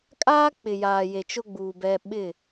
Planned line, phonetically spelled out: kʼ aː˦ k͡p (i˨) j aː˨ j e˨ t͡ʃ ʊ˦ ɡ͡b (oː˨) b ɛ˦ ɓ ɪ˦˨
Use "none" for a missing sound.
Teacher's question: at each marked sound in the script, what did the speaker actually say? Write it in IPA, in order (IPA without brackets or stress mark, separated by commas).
ɪ˨, uː˨